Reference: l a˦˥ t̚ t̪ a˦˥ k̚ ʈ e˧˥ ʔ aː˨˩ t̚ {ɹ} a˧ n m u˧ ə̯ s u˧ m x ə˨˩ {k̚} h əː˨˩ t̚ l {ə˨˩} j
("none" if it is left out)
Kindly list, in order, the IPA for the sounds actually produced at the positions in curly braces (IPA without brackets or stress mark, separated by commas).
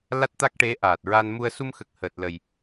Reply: ɹ, k̚, ə˨˩